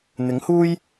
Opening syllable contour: rising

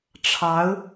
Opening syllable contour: rising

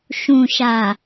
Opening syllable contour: low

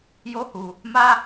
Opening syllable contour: high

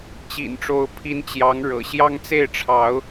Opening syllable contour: low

